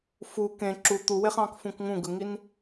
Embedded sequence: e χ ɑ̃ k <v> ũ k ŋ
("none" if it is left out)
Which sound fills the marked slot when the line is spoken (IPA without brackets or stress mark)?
f